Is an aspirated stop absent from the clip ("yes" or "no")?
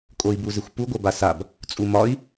yes